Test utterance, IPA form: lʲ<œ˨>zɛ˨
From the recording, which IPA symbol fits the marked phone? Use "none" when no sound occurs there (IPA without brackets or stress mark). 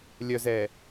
œ˨